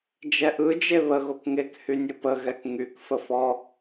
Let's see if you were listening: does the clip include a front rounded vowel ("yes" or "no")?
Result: yes